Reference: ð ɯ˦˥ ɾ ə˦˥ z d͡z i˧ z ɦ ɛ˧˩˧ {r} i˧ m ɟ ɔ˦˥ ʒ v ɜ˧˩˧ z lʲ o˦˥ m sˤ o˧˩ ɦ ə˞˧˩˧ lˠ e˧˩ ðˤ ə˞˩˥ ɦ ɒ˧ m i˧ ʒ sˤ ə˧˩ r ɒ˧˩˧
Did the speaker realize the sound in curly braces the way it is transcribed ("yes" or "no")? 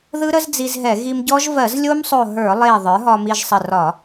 no